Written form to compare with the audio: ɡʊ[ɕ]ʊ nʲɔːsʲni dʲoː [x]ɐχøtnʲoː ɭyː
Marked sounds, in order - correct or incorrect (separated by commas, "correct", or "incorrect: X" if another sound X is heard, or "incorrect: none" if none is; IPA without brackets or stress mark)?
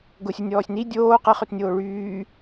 incorrect: sʲ, incorrect: q